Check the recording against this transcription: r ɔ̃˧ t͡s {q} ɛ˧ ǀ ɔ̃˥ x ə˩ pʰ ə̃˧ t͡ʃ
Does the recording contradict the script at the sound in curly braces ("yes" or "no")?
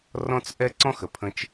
yes